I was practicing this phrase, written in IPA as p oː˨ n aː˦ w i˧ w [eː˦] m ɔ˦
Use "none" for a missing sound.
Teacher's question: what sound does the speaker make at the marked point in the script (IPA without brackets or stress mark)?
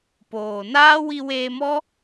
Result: eː˧